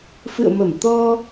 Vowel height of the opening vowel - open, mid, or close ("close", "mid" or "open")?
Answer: close